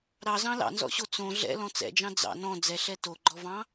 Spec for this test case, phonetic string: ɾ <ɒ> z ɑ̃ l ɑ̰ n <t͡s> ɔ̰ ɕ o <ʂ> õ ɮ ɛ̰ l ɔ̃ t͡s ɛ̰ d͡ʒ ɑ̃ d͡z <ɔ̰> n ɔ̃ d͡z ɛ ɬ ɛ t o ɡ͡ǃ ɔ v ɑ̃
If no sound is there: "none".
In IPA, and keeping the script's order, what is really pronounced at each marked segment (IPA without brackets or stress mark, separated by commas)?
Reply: ɑ, z, t͡s, ɑ̰